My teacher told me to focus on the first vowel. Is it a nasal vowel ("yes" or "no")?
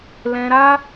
yes